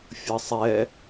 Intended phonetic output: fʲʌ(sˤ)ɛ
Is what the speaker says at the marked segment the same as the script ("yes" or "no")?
yes